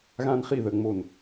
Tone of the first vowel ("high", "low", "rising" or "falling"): high